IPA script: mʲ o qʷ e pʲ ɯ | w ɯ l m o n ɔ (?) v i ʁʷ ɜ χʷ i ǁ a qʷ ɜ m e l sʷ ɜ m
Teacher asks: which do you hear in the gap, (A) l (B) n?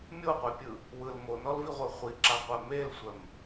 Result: A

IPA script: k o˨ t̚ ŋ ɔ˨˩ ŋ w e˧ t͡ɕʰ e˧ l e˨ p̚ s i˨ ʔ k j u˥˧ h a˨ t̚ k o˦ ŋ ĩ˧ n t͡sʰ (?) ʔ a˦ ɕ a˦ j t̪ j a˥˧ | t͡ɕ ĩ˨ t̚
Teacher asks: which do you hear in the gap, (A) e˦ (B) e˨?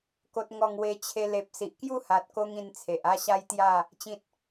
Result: B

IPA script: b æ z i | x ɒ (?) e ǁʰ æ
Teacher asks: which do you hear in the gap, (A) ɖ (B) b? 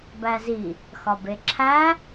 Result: B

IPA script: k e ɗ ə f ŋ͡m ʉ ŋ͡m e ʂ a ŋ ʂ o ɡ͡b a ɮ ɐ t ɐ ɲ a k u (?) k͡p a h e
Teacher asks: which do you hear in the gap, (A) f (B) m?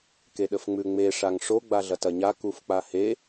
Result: A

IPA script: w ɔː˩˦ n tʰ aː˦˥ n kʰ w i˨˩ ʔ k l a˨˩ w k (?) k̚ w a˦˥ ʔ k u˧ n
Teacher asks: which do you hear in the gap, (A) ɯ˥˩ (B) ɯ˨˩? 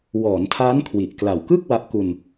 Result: A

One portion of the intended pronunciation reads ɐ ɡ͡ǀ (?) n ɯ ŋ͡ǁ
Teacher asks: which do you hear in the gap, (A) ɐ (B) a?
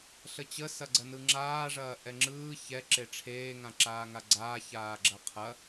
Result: A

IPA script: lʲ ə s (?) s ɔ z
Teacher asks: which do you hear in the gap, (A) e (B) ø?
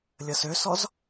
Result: B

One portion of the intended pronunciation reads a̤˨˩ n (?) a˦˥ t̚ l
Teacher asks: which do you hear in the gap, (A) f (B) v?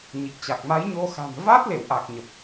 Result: B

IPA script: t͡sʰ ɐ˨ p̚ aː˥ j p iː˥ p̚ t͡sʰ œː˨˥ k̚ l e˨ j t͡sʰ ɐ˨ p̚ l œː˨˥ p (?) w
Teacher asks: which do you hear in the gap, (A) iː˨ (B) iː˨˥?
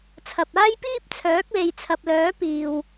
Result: A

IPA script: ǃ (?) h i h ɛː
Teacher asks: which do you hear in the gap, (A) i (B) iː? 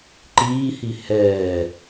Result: B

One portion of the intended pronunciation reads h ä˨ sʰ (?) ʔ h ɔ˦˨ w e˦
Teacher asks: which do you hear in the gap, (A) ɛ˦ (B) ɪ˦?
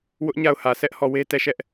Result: A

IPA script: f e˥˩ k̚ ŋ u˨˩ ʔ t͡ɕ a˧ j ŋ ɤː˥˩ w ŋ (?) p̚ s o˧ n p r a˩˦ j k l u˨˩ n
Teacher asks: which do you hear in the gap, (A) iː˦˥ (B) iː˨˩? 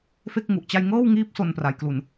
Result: A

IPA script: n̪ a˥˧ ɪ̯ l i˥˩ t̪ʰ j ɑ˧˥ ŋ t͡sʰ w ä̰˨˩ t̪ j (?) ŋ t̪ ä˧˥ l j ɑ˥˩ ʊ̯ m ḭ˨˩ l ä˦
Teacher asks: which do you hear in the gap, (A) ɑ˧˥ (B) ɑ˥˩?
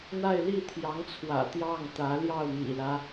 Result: B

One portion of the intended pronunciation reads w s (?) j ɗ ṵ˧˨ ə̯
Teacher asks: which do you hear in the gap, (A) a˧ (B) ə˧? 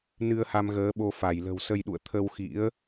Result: B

